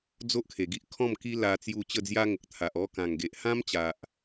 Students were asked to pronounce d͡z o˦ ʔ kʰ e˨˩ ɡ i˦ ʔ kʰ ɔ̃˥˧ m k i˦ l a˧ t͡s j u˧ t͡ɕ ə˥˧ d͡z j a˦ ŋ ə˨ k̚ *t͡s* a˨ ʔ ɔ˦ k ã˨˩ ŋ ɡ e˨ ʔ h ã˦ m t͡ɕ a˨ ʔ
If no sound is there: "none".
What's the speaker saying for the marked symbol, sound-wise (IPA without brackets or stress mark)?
t̪ʰ